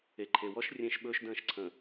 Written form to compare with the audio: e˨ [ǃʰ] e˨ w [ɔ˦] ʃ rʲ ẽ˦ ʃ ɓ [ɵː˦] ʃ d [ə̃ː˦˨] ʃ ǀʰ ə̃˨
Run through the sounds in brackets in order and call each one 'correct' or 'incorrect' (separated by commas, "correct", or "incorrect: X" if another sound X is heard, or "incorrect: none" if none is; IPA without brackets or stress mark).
correct, correct, correct, correct